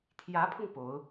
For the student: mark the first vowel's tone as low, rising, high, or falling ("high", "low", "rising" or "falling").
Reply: rising